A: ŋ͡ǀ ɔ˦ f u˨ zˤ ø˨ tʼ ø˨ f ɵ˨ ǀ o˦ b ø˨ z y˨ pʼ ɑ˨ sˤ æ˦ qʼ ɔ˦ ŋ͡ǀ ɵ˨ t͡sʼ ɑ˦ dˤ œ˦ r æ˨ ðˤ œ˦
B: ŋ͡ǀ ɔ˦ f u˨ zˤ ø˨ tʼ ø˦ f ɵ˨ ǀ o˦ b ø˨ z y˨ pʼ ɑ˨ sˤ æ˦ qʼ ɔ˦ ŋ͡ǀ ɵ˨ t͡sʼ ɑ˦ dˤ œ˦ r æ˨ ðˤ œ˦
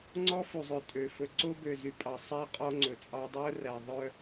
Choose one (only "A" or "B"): A